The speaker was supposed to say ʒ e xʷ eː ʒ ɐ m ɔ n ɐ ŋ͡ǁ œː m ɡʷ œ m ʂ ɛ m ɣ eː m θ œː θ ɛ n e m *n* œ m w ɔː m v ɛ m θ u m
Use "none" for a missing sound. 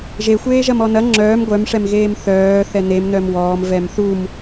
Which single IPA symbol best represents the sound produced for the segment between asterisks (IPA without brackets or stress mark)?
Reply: n